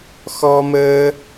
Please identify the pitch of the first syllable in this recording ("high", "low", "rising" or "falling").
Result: high